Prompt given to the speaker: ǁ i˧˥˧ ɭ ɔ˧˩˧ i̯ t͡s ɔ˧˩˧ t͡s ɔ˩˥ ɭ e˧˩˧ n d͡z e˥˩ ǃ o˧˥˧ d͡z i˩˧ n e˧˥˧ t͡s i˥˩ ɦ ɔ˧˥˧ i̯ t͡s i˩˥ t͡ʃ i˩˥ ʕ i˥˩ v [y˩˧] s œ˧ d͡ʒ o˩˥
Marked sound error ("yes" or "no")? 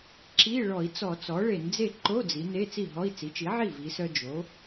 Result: yes